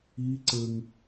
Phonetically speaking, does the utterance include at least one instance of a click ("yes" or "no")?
yes